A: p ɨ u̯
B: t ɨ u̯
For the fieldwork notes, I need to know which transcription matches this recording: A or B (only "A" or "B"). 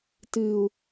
B